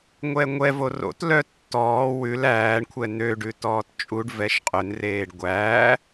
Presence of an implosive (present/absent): absent